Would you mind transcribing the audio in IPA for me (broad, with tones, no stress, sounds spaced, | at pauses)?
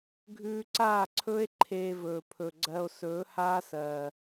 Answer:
ɡʱ ʉː˧ ǀ aː˦˨ ǀʰ ɵː˦ e̯ ǃʰ eː˧ v ɵː˨ pʰ ɵ˨ ɡ͡ǀ ɜ˧ o̯ s ɵː˨˦ h aː˦ s ɜː˨